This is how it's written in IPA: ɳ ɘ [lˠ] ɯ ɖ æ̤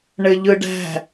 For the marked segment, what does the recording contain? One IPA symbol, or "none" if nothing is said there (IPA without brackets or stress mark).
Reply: ʎ